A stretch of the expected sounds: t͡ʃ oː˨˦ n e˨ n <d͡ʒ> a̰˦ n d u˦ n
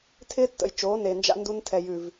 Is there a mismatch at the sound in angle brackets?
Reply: no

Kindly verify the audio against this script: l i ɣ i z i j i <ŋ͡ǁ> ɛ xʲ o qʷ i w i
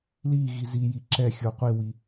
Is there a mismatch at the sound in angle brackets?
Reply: yes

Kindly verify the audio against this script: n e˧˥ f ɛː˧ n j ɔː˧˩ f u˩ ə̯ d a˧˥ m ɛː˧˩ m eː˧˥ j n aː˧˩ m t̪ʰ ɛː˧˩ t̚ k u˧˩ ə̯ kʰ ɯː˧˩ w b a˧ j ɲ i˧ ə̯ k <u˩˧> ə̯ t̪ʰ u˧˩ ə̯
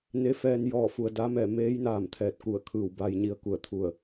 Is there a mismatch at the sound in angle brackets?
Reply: yes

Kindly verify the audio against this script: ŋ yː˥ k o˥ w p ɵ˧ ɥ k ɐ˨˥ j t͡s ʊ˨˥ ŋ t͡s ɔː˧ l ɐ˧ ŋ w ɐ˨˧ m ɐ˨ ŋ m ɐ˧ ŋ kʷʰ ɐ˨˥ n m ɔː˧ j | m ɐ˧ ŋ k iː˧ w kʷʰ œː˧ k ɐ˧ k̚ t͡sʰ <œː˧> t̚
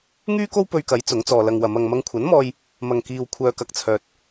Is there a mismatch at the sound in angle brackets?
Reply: no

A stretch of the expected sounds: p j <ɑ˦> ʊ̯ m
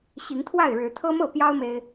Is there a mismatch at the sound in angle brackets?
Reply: no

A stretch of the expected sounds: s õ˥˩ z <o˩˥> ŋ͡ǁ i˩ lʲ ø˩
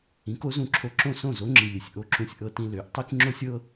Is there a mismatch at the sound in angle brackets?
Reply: no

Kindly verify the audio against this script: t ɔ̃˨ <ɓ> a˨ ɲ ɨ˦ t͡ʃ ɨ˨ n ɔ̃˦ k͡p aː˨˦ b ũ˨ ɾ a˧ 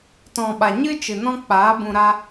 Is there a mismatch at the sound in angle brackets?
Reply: no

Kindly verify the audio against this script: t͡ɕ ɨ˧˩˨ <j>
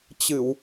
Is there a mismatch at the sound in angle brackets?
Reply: yes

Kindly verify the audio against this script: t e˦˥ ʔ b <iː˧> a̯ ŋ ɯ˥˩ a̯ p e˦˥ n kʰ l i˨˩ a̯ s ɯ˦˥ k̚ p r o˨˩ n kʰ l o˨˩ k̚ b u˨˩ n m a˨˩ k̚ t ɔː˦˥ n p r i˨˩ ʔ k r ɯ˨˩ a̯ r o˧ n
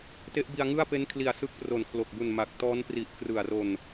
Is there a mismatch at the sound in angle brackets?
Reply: yes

